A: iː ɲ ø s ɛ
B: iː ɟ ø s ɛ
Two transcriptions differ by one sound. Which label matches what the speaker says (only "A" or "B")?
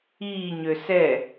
A